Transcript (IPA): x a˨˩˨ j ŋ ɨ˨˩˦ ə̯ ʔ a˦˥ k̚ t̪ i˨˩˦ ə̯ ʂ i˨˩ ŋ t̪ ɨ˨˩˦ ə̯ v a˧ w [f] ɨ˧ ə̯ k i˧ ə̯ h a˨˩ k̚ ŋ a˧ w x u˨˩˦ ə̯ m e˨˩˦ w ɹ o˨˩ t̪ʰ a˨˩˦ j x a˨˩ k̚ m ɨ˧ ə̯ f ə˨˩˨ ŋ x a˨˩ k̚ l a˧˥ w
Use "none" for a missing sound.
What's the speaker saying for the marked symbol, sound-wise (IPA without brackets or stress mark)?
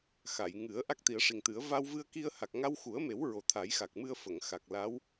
v